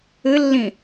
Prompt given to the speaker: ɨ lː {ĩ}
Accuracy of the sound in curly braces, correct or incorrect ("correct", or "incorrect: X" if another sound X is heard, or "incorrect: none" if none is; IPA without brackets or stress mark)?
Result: correct